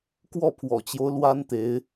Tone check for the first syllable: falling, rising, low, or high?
falling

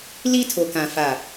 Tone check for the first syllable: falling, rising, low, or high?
high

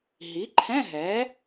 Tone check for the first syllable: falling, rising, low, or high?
rising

